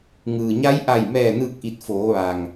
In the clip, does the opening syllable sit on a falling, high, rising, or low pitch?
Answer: low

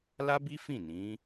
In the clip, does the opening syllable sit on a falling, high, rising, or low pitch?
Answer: high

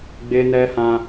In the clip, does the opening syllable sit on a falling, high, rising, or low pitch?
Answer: high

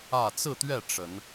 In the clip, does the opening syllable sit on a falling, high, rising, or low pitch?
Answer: falling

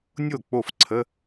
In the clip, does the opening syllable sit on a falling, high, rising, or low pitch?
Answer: falling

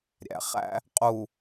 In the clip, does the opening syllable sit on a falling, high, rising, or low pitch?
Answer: low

